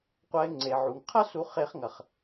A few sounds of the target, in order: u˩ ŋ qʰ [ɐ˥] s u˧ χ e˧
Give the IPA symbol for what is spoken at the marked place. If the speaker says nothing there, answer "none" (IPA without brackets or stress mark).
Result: ɐ˥